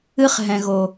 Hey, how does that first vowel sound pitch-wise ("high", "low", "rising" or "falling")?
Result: high